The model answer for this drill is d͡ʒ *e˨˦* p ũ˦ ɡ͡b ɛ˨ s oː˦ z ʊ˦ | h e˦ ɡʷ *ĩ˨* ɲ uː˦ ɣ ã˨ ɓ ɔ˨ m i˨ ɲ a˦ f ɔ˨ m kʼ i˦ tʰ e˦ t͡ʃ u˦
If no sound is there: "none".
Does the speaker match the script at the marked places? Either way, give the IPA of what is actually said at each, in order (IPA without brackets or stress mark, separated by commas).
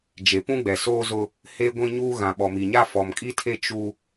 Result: e˨, ĩ˦